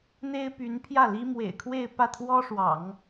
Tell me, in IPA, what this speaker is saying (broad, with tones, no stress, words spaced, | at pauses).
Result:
n̪e˥ɪ̯py˧˥npʰjä˥˩li˥ mwḛ˨˩ɪ̯kʰwe˥˧ɪ̯ pä˥˩t̪ʰwɔ˥ʂwɑ̰˨˩˦ŋ